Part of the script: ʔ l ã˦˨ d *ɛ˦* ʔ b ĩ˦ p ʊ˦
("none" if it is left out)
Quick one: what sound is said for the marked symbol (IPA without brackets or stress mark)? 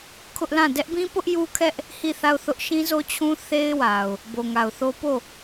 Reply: ɛ˦